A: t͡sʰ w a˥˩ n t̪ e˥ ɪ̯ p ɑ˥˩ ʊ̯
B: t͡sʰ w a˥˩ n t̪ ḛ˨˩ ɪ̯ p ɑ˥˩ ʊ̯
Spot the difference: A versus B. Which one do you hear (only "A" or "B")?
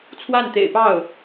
B